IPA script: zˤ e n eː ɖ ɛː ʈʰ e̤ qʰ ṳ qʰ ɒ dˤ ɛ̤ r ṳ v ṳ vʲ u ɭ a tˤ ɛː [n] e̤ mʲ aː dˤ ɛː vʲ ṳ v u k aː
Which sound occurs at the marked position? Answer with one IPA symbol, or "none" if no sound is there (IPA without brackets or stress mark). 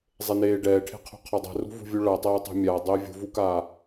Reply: tˤ